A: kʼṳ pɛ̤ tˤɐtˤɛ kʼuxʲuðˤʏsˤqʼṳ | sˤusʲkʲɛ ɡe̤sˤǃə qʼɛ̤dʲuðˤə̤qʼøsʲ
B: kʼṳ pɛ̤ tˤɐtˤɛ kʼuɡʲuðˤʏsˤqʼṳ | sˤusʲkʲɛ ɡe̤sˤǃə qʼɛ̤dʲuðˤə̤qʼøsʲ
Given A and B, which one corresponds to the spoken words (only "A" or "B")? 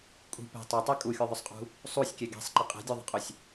A